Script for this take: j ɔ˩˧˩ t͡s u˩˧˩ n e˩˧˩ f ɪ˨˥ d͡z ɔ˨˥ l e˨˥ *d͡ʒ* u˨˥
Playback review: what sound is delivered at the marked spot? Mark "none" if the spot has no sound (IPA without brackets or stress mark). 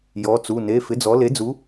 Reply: d͡z